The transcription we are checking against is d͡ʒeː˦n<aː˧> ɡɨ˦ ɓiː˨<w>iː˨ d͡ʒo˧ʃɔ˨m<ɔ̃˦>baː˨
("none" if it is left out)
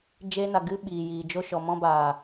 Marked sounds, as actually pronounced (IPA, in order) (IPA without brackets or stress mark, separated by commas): a˧, j, ɔ̃˧